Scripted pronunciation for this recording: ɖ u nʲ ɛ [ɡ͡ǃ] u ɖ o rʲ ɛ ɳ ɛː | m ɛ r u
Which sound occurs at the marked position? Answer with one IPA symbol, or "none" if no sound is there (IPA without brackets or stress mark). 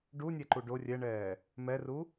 ǃ